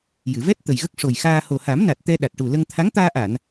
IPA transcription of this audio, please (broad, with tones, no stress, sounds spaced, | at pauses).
j ɨ˨˩˨ v ɛ˦˥ t̚ t̪ ə˨˩ j ɣ ə˦˥ k̚ ʂ o˨˩ j x aː˧ h o˨˩ h a˨˩˦ m n a˨˩ t̚ t̪ ɛ˧ ɗ a˨˩ t̚ ʈ u˨˩ l ə˧ ŋ t̪ʰ a˧˥ ŋ t̪ aː˧ ʔ a˨˩˨ n